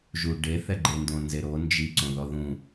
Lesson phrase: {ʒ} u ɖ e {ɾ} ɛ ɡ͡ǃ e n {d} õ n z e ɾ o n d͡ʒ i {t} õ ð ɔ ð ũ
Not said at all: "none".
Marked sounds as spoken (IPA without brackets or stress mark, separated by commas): ʒ, θ, d, ǀ